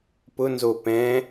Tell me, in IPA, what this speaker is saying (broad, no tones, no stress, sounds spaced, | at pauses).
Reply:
p ʊ n z o p ɛ̃